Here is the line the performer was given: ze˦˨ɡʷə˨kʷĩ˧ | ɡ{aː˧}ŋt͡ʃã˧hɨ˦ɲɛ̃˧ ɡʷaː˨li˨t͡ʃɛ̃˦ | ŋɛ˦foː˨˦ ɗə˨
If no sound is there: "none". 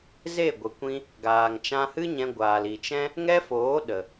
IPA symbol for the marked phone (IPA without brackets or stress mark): aː˨